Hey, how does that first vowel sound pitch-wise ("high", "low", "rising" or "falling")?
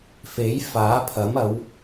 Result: rising